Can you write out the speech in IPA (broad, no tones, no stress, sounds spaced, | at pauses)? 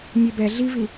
nʲ e b ɛ ɮ i v i